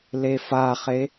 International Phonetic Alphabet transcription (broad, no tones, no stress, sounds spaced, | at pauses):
l e f a χ e